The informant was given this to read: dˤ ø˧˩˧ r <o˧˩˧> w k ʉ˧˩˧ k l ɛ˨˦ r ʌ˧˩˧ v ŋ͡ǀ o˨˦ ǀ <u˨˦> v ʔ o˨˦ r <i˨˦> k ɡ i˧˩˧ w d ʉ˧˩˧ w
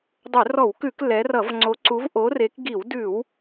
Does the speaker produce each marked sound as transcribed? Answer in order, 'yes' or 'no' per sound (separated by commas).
no, yes, no